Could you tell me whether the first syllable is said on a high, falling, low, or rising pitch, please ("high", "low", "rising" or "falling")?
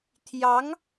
rising